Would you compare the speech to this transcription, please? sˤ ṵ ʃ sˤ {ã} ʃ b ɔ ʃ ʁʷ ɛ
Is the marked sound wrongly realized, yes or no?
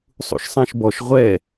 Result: no